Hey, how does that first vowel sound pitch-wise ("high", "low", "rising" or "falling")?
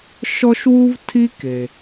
high